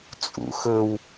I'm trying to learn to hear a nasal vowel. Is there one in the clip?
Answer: no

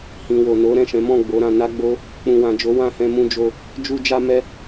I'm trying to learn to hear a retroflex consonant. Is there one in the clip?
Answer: no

